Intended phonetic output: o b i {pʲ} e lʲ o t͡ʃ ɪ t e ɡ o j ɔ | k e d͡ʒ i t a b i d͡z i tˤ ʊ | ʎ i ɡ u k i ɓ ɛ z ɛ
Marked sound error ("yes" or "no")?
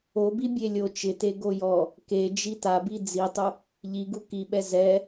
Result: yes